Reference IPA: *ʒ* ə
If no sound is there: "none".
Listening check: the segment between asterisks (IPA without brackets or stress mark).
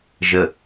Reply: ʒ